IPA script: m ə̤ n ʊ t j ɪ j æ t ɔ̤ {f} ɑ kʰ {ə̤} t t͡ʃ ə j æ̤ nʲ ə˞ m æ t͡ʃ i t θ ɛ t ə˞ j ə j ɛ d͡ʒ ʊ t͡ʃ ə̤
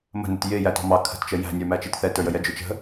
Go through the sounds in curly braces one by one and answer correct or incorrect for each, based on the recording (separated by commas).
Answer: incorrect, correct